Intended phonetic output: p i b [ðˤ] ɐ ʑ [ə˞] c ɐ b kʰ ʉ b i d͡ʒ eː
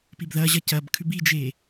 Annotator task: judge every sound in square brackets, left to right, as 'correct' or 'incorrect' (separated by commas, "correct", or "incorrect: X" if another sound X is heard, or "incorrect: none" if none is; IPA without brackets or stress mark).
incorrect: ð, incorrect: ɐ